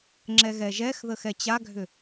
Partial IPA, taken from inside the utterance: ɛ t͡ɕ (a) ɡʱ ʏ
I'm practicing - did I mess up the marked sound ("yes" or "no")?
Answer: no